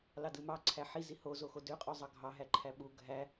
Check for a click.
present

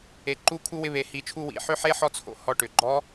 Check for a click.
present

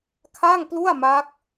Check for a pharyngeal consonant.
absent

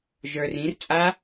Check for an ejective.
present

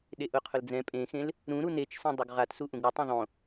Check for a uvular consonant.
present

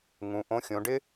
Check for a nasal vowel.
present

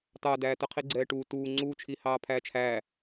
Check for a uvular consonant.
present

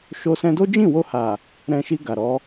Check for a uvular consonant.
absent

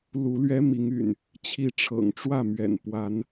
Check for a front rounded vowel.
present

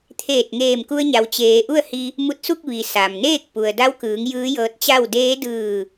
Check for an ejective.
absent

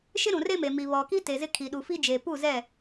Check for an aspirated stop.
present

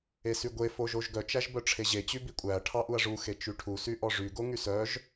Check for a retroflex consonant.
present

